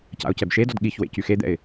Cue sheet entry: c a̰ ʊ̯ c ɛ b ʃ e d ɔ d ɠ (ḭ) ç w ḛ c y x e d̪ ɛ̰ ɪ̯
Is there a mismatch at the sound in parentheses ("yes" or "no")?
yes